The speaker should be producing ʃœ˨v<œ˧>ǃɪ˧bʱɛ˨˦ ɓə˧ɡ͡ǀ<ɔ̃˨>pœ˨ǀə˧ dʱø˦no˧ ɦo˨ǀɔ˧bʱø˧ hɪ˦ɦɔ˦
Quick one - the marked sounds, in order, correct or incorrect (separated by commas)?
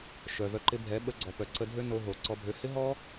correct, incorrect